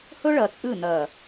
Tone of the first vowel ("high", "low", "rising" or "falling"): high